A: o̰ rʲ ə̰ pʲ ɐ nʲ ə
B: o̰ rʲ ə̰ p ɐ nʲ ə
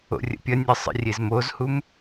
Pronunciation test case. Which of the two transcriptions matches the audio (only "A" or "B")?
A